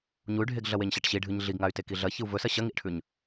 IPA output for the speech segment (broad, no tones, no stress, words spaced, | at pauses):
ɲuy̯ɖʱeɡɮɐweɲ ɕaʈɕiɖʱɨɲ ɮiɡŋay̯ tekiɮɐ çɨu̯vɵsɐ ɕɐŋiʔʈʰʉɲ